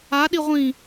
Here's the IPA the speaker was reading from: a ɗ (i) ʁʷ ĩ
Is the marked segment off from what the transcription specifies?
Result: no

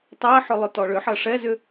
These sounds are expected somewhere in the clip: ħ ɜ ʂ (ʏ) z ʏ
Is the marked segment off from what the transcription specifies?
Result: yes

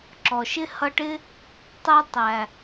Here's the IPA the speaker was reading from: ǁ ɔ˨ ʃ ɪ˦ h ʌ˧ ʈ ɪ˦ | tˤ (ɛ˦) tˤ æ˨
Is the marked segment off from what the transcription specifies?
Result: no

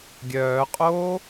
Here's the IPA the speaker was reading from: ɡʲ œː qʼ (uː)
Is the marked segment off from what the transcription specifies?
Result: yes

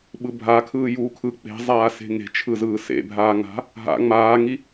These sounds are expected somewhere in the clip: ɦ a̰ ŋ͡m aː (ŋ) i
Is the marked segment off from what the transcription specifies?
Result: no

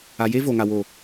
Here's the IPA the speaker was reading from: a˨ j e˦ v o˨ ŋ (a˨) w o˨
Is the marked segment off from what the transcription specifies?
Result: no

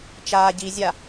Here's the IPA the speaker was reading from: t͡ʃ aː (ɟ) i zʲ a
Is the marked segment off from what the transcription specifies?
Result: no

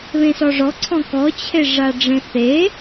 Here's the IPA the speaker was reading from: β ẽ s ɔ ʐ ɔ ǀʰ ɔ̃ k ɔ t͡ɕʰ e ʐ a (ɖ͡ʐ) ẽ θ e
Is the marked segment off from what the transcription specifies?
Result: no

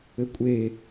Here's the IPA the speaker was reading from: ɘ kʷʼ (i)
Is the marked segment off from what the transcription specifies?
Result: yes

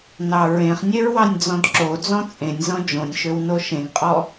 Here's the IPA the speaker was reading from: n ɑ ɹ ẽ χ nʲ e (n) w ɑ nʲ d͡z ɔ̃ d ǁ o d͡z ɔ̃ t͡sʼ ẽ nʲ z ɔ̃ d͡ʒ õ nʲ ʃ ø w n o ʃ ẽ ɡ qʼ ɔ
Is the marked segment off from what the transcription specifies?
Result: yes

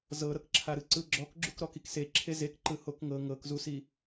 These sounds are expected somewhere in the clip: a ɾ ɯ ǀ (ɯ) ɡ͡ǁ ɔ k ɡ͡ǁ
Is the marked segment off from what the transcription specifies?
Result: no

